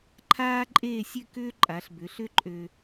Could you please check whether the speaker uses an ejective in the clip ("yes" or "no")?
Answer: yes